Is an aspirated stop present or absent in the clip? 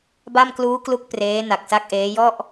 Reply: absent